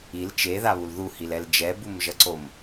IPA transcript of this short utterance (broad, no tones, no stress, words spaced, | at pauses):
il t͡ʃeðaβul ðuhilɛl d͡ʒɛbumʒʌǀom